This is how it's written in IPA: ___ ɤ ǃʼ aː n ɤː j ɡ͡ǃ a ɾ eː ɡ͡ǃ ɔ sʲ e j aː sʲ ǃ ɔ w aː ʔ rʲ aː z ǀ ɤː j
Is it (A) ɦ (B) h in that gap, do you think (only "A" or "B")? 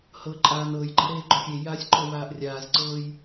B